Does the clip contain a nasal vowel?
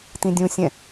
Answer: yes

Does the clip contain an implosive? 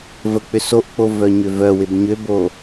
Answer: no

